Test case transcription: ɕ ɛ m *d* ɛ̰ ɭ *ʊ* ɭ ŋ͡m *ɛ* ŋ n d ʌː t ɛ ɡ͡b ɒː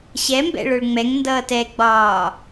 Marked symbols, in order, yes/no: no, yes, yes

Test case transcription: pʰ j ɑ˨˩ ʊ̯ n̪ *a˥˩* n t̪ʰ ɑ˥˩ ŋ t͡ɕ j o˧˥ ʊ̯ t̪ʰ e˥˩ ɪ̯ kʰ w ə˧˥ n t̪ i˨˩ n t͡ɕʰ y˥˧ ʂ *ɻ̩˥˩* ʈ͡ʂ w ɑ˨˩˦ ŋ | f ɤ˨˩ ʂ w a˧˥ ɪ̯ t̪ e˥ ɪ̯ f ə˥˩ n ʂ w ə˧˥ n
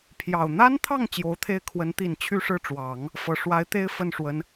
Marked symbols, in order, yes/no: no, yes

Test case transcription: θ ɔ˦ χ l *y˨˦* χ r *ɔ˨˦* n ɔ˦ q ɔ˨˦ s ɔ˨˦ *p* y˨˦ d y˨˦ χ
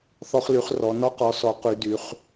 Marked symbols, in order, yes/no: yes, yes, no

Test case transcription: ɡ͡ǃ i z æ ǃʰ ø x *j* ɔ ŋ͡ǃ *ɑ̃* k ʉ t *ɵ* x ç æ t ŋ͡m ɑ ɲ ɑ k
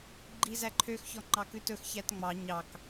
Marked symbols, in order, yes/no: no, no, yes

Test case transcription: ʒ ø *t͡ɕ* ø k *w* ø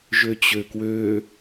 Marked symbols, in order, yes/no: yes, yes

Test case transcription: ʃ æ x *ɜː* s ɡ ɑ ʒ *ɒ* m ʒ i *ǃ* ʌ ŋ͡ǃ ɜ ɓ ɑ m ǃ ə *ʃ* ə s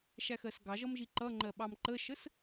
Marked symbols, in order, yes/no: no, no, yes, yes

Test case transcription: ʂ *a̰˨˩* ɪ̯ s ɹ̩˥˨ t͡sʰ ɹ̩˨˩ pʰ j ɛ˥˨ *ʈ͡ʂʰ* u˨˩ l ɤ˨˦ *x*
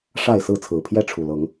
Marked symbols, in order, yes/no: no, yes, no

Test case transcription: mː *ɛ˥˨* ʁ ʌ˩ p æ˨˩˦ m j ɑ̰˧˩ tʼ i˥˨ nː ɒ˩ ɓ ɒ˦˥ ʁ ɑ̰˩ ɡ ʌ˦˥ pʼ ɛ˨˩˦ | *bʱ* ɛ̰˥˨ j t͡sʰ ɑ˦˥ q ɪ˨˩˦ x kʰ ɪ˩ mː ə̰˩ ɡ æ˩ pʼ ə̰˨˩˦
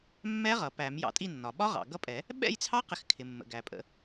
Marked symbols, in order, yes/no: no, no

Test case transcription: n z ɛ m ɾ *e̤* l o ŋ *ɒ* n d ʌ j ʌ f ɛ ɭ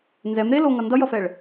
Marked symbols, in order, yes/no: no, no

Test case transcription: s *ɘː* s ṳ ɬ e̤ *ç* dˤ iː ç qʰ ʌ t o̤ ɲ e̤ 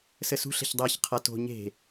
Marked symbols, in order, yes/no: no, yes

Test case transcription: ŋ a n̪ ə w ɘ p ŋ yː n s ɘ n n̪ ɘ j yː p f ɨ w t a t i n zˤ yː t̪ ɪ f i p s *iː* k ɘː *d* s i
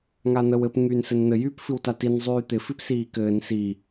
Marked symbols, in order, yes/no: yes, no

